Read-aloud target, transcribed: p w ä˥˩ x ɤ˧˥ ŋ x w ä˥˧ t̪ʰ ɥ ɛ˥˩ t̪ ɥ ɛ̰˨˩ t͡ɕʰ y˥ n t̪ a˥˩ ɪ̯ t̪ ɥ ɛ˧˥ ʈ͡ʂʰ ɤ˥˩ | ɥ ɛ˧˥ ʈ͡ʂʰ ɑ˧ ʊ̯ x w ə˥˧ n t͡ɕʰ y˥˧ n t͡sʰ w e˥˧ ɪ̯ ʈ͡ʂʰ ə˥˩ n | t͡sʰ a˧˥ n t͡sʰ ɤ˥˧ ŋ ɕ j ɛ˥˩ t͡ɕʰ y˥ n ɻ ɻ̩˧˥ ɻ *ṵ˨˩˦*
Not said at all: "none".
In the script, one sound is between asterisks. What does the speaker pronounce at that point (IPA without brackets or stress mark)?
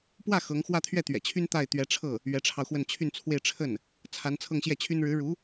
u˧˥